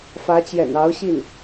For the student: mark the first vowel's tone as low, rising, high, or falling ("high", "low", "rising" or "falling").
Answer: rising